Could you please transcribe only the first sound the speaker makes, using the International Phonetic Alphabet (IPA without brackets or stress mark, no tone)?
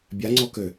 bʲ